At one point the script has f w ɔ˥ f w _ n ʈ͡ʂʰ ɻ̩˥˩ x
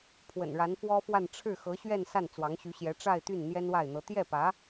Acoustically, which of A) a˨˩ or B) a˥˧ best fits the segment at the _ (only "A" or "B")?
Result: B